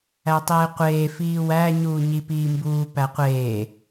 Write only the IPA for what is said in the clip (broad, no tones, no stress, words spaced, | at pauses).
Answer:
ætˤeːqʷeː fiːwæ ɲuːɲipiːmbuː pæqʷeː